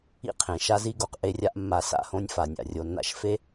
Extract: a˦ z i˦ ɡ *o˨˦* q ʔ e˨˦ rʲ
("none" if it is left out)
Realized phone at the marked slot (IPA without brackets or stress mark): o˨